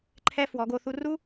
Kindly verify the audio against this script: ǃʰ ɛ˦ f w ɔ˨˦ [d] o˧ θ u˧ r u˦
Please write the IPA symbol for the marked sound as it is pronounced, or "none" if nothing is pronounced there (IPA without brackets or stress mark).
ɡ